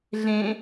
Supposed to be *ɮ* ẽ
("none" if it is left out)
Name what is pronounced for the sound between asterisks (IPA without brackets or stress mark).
ɮ